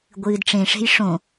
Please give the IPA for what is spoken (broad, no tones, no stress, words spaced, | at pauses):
ɡʷɨːdʈ͡ʂẽʂe̤j ʂõ